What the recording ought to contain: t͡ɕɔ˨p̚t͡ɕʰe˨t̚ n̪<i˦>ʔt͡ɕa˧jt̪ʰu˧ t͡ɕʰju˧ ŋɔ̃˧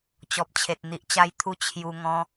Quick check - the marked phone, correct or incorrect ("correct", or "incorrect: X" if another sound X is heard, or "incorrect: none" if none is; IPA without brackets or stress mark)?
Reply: incorrect: i˨